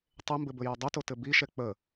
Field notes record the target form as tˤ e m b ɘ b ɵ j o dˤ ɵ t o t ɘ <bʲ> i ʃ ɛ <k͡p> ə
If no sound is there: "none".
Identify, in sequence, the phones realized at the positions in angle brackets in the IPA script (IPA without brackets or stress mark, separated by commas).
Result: b, k͡p